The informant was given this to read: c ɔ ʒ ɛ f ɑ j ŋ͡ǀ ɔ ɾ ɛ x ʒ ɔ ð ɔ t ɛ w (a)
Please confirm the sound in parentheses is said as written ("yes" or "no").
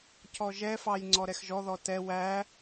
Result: no